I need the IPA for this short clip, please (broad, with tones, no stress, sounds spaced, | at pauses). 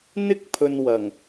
n̪ ɪ˥ k̚ pʰ ɵ˨ n w ɐ˨˩ ŋ